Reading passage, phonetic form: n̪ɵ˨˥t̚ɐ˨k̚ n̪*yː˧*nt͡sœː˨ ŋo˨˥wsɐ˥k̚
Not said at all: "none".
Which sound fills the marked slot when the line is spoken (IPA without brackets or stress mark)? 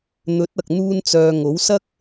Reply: uː˧